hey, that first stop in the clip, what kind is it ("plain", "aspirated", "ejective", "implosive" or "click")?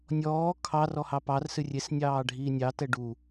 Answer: aspirated